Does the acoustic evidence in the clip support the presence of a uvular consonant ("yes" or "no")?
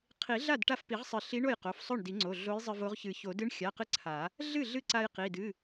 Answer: yes